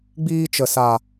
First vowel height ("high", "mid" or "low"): high